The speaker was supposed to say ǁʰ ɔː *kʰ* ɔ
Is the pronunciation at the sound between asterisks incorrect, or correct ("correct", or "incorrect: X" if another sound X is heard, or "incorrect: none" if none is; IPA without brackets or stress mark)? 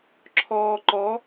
incorrect: ǃ